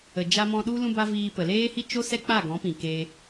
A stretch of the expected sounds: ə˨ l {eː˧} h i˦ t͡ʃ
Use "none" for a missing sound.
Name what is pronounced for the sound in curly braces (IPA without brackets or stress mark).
eː˦